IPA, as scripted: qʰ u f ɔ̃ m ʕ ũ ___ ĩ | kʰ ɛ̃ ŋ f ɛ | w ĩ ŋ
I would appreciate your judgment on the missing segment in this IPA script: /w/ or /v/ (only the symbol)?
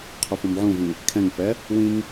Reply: v